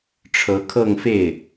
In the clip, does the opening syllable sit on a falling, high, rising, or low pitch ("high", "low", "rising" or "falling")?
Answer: rising